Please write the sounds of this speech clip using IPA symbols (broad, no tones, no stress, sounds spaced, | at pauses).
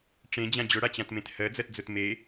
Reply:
ʈ͡ʂ ẽ d͡ʑ ã d͡ʑ ʊ ɽ a t͡ɕ ã t m ẽ t h ɜ d͡z ɜ t d͡z ʊ t m e